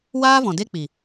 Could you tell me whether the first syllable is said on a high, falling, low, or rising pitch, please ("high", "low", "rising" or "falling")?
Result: high